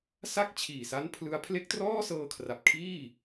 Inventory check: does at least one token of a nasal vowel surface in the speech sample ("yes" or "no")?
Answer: no